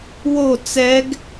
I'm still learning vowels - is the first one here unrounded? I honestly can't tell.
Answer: no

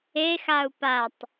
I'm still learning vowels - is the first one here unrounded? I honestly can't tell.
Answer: yes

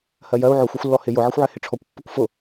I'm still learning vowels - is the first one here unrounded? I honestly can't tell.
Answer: yes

